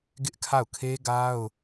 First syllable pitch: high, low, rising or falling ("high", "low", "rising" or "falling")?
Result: high